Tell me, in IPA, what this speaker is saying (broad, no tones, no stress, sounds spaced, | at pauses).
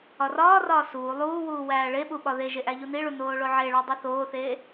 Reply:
ɒ r ɒː r ɒː s uː lˠ uː w uː w æː ɭ e ɓ u ɓ ɒ ð e ʒ e ʔ æ ʎ u n i ɭ u n oː ɭ o ʕ e ɭ ɒ dˤ i θ oː θ eː